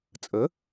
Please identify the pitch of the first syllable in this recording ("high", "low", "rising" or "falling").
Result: rising